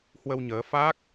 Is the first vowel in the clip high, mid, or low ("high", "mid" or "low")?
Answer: mid